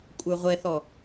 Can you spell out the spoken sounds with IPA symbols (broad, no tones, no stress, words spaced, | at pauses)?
kʷʼə˞ʁʷɛθɔ